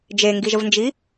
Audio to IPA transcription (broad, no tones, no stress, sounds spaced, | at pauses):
d͡ʒ e ŋ ɡ i ʒ ə v n d͡ʒ i